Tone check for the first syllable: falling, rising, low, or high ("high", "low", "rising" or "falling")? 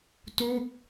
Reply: falling